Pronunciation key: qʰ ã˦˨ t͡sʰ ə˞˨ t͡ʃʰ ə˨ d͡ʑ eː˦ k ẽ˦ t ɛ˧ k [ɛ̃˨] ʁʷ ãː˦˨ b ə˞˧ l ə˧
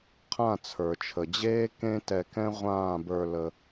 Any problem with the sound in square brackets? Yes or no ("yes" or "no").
yes